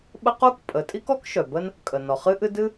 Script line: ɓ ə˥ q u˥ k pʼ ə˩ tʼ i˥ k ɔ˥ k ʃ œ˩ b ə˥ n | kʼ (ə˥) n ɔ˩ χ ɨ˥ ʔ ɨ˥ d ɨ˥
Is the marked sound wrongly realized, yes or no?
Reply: yes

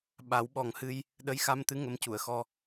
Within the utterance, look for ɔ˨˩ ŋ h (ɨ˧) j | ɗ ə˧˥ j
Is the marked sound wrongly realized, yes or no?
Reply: no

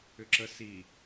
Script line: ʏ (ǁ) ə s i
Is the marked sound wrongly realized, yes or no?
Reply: no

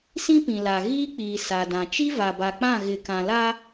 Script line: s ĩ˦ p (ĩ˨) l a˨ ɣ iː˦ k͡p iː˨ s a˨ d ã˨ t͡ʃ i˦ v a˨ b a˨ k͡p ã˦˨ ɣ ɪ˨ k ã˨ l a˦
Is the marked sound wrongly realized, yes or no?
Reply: no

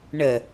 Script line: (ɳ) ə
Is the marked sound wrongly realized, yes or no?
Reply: no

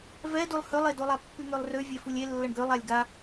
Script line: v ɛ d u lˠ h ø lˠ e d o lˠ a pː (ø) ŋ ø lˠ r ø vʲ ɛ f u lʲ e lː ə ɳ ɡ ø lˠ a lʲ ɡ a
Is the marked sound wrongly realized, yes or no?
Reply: yes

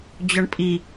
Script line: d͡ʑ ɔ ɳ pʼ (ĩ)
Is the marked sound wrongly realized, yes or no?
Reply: yes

